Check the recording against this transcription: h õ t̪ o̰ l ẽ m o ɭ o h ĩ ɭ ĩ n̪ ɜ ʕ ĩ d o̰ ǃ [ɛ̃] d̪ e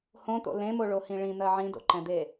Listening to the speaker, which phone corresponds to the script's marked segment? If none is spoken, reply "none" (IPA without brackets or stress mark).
ɛ̃